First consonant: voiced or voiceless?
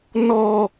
voiced